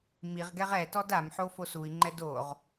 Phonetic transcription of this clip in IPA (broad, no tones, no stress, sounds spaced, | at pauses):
m i ʁ ɡ ɛ ʁ ɛ t ɔ d a m ħ o f o s u i̯ ŋ͡ǃ ɛ d o ʁ